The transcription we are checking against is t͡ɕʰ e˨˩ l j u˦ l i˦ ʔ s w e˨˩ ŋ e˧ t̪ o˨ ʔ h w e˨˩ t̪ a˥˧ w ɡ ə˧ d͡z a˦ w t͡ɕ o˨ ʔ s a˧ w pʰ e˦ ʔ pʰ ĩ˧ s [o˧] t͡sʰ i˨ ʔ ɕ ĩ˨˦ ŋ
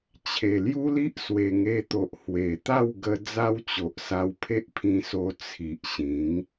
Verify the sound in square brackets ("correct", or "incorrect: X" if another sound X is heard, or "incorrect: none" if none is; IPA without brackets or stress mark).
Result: correct